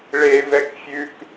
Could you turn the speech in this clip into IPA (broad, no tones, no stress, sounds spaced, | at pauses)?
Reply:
ɭ e v ɛ k fʲ ʉ k